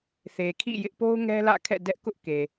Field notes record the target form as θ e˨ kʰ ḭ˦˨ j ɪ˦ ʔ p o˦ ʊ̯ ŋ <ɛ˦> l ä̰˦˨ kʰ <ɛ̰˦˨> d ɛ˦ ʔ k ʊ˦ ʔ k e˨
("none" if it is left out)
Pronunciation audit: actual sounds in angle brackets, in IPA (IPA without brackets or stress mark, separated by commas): ɛ˦, ɛ̰˦˨